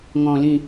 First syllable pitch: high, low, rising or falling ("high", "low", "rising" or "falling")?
low